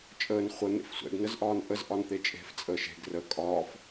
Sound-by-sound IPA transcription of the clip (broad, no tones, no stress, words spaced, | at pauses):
t͡ʃʼəːn χʷə n̪ḛfsʷɛ̰ɡ nəzʔɒːnʔəz ʔɒnt̪et͡ʃʼe̤f t͡sʼəːʃe̤ɡ rə kʼɒːf